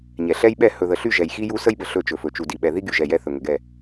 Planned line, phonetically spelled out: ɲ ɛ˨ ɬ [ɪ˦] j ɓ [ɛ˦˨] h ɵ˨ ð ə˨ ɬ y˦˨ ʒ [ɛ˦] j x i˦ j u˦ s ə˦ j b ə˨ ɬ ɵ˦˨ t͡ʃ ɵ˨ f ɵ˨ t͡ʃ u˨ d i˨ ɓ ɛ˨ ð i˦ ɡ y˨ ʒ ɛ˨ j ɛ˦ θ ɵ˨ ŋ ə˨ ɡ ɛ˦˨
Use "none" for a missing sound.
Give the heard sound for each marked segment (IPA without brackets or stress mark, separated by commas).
ɛ˦, ɛ˦˨, ɛ˨